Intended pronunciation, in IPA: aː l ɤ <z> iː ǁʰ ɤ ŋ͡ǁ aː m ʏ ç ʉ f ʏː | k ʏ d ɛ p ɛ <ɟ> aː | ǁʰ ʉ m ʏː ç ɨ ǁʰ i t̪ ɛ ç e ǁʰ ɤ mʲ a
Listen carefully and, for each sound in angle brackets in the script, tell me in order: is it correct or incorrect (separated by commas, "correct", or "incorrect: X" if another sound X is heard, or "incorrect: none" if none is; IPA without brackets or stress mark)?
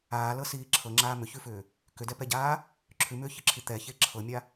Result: incorrect: s, correct